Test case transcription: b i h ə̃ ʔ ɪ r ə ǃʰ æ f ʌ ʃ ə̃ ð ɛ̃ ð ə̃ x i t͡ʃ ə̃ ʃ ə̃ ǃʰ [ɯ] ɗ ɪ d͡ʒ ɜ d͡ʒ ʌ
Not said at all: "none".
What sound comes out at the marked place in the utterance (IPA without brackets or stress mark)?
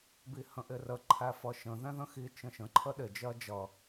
ə